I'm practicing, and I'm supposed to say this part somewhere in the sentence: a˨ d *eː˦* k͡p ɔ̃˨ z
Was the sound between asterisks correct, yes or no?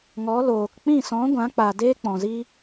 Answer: yes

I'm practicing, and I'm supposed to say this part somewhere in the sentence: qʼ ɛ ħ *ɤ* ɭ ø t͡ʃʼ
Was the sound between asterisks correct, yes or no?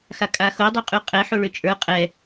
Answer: no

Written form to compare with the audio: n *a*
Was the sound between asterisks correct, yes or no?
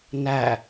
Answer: no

